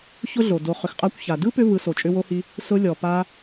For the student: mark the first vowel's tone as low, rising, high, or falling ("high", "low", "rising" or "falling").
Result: high